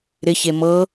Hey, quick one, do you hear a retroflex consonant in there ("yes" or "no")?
no